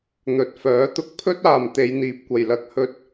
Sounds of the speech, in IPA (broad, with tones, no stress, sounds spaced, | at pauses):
n̪ ɵ˨ t̚ f œː˨˥ t̪ ʊ˧ k̚ pʰ ɵ˥ t̚ aː˨ m t̪ e˨˧ j n̪ iː˨ p̚ kʷ ɐ˨ j l ɐ˧ k̚ h ɵ˧ t̚